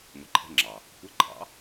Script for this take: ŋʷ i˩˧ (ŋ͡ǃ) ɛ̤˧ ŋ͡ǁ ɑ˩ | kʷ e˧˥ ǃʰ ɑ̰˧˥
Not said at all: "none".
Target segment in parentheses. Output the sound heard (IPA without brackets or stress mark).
ǃʰ